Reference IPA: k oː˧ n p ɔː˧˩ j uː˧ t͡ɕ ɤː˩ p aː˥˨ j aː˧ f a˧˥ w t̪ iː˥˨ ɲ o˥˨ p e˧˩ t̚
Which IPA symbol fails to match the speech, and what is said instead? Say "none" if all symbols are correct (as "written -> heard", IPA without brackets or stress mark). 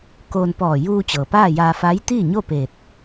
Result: w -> j